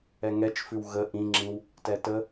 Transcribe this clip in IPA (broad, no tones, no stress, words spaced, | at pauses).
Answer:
ɛŋɛt͡ʃfʉw ɣə ʔĩŋ͡ǁĩw | tɛtə